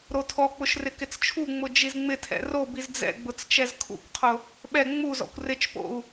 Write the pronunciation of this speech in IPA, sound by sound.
ɾ o tʰ ɔ k͡p ʊ ʃ r ɪ k ɪ t͡s t͡ʃʰ u ŋ͡m ʊ d͡ʒ i z ŋ͡m ɪ tʰ ɛ̰ r o b i z d͡z ɛ̰ ɡ͡b ʊ t͡s t͡ʃ ɛ z kʰ ṵ k qʰ ʊ | ɓ ɛ ŋ͡m u z ɔ̰ kʷ r ɪ t͡ʃ p o̰ u̯

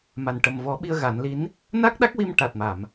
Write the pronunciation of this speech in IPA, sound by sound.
m a˨˩ n ʈ ə˨˩ m v ɔ˨˩˦ ɓ i˧ ə̯ ɣ a˨˩˦ n l i˧˥ n | n a˦˥ k̚ ɗ a˦˥ k̚ w i˧ m ʈ a˨˩ t̚ m a˨˩˨ m

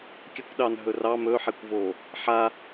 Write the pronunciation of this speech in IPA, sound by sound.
kʲ ɵ kʷ ɗ ɑ n ɦ ɵ r ɑ m ɵ ħ e kʷ v o | ħ a

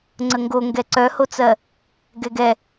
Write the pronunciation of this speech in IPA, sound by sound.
ŋ͡ǀ ə ŋ ɡ o ŋ ɡ ɛ ǀ œ h o t͡s ɜ | ɡ ɛ ɡ ɛ

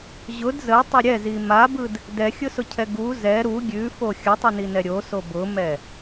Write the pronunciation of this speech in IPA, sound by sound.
ʑ ʊ d z ə tˤ ə ɾʲ ɛ z i m a b ɯ d | d ɛ xʲ ʊ s ʊ cʰ ɛ ɡ u z ɛ ɾ u ɡʲ ʉ f o xʲ ə tˤ ɯ n i n ɛ ɾʲ o s o b ʊ m ɛ

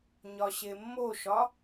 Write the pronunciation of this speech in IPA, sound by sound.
ɲ ɒ ɕ e mː o ʃ ɒ

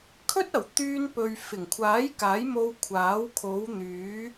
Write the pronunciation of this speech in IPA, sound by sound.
kʰ ɵ˥ t̚ ɐ˨˩ w t̪ yː˧ n p ɵ˨ ɥ f ɪ˨˩ ŋ kʷʰ aː˨˥ j k aː˨˥ j m o˧ w kʷʰ aː˨˥ w kʰ o˨˧ w n̪ yː˨˧

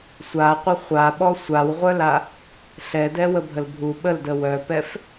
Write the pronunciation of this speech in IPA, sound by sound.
sʷ a qʷ e χʷ a ɓ ɔ sʷ a w ʁʷ œ l a | ɬ ɛ d ɛ w ə bʱ ə l bʱ u ɓ ə l d ə w œ p ɛ f

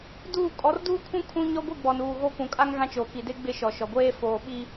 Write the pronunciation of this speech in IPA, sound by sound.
d uː˦˨ kʼ ɔ˨˦ r d uː˦ kʰ ũ˦ kʰ ũ˦ ɲ ɔ˦ ɡʷ i˦˨ ɡ͡b ɔ˨ n uː˨ ɣ o˦ k ũ˨ kʼ a˦ ŋ ɣ ã˦ t͡ʃ oː˨ k i˨ d e˦ ɡ͡b ɪ˦ ʃ ɔ˨ ʃ ɔ˨ ɡʷ eː˦ f oː˨ ɓ i˨

